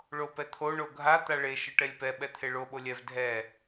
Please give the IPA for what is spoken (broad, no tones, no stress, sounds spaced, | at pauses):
ɭ o p ɛ t̪ʰ o ɳ o ɡʱ a t̪ a ɭ e ʃ ɯ ʈ ɛ lʲ p ɛ ɓ ɛ t̪ʰ e ɭ o ɓ o lʲ ɛ v dʱ ɛ